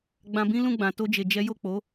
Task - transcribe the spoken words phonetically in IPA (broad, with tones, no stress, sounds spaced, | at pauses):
ɡ͡b ã˧ b ĩ˦ l ũ˦˨ ɡ͡b ã˨ t o˧ d͡ʒ e˨ d͡ʒ ɛ˨˦ j o˦˨ k͡p o˨˦